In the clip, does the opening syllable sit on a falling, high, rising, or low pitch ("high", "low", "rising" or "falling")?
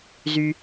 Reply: low